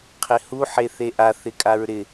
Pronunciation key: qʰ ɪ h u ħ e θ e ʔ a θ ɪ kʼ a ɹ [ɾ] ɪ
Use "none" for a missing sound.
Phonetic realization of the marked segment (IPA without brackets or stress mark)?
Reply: ɾ